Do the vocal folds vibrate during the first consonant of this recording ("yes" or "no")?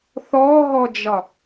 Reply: no